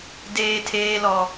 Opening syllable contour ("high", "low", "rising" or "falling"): low